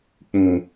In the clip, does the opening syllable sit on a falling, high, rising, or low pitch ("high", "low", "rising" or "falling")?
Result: low